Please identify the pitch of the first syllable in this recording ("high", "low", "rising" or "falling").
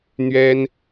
high